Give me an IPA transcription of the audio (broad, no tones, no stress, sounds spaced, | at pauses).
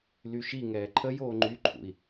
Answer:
l y ʃ i ŋ ɛː ǃʰ ə j oː ŋ͡ǃ y ǃʰ ṵ i̯